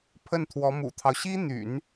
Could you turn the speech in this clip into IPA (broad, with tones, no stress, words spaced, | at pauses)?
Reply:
pʰə˥˩nt̪ʰwɔ˧˥mṵ˨˩t̪ʰɑ˦ʊ̯ ɕi˥n̪y̰˨˩˦n